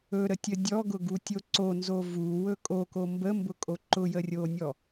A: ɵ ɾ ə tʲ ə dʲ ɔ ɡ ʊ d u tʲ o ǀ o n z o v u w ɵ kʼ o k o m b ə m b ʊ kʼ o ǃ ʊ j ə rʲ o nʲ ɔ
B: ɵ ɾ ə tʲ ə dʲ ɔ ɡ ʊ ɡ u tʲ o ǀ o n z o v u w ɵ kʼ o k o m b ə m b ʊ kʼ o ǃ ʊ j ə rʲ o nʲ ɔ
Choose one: B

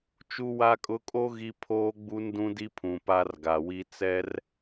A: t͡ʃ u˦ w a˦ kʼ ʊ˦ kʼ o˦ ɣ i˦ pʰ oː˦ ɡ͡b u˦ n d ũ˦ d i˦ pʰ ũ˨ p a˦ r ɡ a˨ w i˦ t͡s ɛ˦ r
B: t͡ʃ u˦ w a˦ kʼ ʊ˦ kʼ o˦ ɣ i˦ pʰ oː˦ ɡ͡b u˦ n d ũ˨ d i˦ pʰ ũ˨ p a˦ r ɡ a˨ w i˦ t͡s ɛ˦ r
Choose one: A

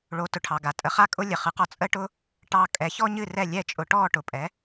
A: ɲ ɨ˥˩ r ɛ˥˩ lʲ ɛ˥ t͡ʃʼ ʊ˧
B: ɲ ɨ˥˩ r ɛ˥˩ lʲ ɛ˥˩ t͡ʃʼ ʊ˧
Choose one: B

